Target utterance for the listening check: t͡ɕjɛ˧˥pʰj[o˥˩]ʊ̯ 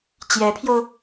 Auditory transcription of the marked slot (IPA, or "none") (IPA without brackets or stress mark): o˧